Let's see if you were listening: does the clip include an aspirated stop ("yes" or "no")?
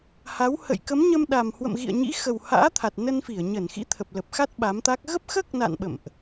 yes